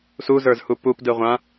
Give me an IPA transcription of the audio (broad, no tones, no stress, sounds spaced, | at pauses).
s u z ə˞ z h u p u p d ɯ ʁʷ ã